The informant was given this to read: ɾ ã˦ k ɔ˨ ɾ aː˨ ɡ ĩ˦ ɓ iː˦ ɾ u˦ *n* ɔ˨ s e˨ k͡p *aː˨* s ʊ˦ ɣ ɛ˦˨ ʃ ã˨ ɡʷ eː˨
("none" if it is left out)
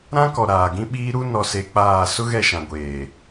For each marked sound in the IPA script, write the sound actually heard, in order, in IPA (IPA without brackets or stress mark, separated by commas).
n, aː˦˨